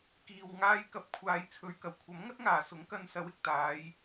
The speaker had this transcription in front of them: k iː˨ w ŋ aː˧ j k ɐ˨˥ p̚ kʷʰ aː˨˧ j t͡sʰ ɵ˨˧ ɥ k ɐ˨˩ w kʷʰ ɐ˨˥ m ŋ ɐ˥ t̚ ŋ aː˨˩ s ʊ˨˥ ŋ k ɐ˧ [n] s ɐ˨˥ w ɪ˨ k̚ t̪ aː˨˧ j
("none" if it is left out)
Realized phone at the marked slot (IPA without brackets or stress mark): n